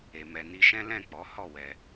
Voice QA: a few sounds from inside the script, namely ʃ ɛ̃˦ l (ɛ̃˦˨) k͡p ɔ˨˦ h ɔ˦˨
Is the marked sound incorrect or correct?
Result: correct